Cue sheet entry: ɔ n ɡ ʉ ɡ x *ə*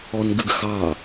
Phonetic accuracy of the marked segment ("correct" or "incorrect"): incorrect